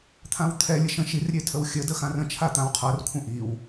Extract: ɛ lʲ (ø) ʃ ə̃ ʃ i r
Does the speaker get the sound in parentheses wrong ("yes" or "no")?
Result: yes